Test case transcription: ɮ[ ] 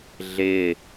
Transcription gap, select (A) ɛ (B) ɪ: B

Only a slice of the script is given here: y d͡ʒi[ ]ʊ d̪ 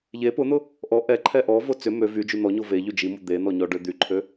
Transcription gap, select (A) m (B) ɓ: A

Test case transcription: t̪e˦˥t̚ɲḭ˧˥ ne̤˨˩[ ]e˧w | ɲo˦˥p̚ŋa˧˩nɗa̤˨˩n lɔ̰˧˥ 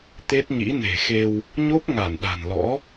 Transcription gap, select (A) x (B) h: A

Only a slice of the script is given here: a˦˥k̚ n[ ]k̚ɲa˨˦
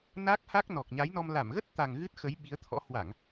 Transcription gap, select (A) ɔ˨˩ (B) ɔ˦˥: A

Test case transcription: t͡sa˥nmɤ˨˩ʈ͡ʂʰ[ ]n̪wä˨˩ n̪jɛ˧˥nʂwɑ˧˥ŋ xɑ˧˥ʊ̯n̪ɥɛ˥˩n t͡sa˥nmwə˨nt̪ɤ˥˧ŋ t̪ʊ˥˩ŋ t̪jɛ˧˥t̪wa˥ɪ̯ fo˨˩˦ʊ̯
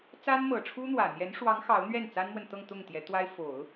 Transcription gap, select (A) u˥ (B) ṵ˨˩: A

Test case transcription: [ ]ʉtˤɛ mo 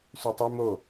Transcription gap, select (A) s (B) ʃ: A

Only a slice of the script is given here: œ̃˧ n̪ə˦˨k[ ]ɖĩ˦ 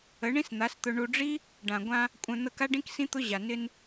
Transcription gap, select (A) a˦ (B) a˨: A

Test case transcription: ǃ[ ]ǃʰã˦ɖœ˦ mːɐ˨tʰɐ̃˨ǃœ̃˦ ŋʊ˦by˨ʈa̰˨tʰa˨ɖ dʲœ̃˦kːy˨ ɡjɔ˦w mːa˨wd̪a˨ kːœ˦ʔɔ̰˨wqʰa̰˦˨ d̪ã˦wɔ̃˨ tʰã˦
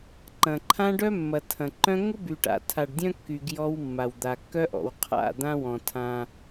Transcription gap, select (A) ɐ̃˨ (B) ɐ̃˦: A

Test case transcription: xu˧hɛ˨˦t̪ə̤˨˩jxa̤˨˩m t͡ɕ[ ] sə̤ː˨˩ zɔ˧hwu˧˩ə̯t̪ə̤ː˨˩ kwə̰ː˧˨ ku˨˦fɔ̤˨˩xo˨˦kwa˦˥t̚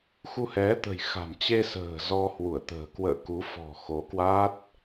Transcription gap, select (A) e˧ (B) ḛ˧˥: A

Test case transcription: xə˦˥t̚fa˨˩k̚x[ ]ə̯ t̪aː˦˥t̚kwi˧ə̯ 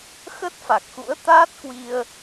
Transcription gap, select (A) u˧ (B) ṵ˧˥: B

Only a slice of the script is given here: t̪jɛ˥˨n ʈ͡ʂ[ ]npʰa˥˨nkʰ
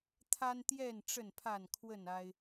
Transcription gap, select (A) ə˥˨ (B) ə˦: A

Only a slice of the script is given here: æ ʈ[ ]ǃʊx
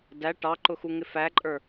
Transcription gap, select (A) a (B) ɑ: B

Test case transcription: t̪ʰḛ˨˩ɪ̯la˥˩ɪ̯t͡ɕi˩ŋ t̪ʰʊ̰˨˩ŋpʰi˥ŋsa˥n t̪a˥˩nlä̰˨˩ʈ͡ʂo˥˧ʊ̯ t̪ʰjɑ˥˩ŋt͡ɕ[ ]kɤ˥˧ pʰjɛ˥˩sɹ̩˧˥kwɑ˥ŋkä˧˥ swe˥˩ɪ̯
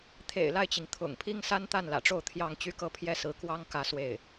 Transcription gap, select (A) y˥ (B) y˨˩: A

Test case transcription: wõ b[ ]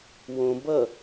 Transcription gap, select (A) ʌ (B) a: A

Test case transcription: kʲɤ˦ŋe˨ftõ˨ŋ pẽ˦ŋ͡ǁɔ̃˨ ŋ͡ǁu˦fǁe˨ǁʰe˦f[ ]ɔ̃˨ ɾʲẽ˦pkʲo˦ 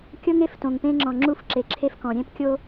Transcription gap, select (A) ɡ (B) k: B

